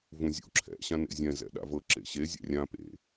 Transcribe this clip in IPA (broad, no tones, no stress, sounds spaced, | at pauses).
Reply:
v ũ zʲ ṵ ǁʰ ɛ̰ ɕ ã n ḛ zʲ ɛ̃ z ɛ̰ ɗ a̰ v ɤ ǁ ḛ ɕ e zʲ a̰ rʲ ã p ḛ